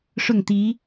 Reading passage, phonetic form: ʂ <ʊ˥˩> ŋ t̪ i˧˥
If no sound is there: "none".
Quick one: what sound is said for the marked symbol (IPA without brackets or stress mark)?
ʊ˥˩